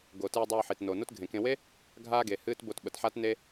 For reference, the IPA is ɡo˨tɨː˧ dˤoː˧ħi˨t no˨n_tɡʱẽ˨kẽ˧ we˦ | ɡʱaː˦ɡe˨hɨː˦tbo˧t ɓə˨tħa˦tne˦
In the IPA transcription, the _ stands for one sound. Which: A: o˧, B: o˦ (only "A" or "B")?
B